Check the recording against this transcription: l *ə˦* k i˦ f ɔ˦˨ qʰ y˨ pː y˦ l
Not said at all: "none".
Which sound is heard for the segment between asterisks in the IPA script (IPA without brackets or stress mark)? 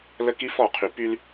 ə˦